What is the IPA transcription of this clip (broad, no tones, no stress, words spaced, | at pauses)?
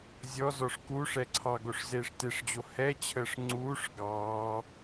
zʲɔzɔʂ kuʂɛ ǀʰɑ ɡoʂzeːʂteʂd͡ʑo hɛt͡ɕʰəːʂ ŋ͡ǀuːʂ ɡɑː